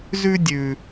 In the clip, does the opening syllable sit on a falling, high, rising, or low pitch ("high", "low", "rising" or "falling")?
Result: high